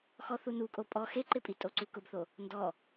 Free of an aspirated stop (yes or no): yes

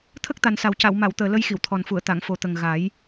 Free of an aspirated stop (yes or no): no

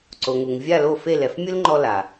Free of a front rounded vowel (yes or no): yes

